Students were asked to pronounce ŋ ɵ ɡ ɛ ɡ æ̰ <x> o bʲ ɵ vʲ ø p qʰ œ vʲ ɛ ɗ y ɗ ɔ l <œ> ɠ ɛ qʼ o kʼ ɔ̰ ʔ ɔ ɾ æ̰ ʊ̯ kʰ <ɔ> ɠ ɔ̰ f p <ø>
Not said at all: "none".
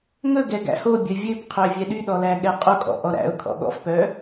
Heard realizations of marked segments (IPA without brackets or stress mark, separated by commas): h, æ, ɔ̰, œ